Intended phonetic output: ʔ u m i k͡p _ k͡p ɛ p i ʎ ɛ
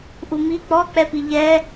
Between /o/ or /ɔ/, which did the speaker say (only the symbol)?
ɔ